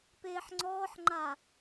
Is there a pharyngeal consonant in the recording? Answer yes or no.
yes